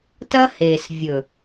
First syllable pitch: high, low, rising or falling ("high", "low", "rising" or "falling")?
high